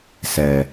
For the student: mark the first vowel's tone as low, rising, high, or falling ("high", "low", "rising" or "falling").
low